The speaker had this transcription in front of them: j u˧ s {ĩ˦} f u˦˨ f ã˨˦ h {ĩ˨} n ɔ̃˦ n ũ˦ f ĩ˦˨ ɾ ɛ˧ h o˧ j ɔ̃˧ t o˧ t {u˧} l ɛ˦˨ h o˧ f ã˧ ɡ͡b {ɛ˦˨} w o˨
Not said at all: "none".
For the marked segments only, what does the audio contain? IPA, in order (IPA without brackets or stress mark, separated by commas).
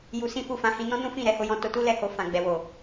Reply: ĩ˦, ĩ˧, u˦, ɛ˨